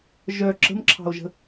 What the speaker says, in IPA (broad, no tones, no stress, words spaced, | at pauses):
ʒœ ǁə̤mǁʰɑ̤o̯ʒə̤